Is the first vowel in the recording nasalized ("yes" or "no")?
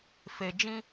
no